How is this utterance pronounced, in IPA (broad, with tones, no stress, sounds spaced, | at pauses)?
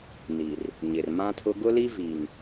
n i˨ r | ɲ ɪ˨ r m ã˦ tʰ ʊ˦ ɡ ʊ˦ l i˦ v i˨ ŋ